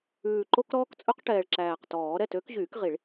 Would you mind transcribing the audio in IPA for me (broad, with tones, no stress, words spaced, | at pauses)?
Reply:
ʉː˨˩ǃo˥k ɾɔː˥kt͡sʼɵ˥qʈɛː˨˩ɭ ǁæː˨˩qtɔː˨˩˦ ɾɛ˥˩tø˧˥kʑyː˨˩˦kʁi˨˩˦ɭ